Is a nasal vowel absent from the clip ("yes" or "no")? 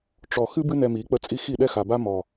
yes